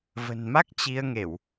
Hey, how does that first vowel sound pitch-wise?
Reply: low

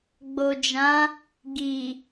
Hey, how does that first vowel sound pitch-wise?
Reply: low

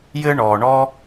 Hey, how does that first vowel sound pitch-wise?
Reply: high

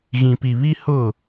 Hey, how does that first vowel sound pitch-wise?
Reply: low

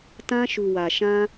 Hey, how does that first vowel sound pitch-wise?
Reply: high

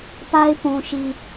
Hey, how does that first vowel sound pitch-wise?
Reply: high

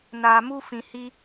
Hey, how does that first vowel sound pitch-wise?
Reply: low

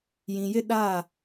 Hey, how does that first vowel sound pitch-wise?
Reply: low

